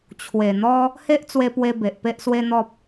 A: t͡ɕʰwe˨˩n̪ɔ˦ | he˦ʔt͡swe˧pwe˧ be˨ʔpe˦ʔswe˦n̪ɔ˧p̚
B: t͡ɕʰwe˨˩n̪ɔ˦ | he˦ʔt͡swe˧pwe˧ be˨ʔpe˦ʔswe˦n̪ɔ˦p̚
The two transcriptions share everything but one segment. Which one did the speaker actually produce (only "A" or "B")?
B